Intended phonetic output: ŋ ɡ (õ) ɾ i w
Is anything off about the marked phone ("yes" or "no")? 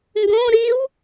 no